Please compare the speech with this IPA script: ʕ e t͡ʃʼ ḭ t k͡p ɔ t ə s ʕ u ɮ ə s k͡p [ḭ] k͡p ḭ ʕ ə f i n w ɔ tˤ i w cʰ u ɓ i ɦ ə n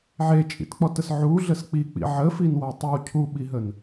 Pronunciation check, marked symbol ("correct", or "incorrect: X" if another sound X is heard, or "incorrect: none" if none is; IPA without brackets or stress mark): incorrect: i